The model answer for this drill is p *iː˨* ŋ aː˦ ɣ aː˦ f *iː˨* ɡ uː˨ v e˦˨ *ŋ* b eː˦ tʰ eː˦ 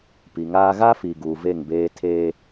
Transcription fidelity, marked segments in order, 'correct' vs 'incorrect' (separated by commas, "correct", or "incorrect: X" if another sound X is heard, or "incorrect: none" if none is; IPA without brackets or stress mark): incorrect: i˨, correct, correct